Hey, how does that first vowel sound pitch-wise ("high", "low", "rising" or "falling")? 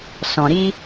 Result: low